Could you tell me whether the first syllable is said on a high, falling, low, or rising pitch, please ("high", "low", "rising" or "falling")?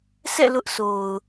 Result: falling